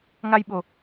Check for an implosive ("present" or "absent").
present